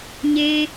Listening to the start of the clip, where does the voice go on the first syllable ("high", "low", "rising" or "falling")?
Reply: high